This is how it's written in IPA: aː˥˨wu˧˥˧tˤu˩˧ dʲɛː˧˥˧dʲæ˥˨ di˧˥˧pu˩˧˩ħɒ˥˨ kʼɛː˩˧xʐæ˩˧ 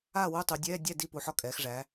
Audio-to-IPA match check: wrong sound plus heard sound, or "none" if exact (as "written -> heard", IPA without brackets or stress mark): none